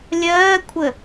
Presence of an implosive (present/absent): absent